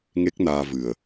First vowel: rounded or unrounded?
unrounded